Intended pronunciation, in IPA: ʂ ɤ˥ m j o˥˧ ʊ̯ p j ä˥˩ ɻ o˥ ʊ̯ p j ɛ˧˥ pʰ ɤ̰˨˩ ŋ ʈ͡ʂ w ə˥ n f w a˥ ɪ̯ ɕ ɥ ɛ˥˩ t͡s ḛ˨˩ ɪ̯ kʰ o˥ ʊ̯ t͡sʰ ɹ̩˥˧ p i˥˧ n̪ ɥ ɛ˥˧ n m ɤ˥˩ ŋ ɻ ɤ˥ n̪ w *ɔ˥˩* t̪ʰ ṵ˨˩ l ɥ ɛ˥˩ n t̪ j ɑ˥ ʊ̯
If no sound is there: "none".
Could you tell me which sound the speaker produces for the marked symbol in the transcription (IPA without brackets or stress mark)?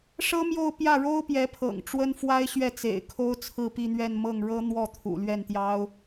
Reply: ɔ˥˩